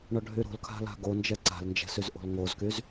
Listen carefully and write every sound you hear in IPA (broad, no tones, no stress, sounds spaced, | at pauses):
ɳ ɔ ɖʱ y ɾ o̤ l kʰ a̤ l a̤ ɡ o n d͡ʒ ɛ ǀ a̤ l n d͡ʒ ɛ̤ s y z ʔ o̤ l ŋ o z k y z